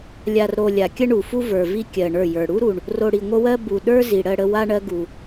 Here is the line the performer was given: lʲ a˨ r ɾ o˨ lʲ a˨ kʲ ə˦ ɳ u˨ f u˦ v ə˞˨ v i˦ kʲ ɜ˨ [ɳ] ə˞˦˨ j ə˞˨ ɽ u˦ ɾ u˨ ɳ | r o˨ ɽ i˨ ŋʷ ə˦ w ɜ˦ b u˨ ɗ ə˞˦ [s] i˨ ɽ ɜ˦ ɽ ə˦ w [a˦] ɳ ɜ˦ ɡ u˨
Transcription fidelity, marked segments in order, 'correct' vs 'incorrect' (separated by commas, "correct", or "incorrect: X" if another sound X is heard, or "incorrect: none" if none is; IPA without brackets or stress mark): correct, incorrect: z, correct